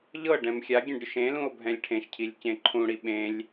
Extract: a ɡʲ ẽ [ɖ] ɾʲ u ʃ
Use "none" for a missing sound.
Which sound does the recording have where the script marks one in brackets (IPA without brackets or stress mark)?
ɖ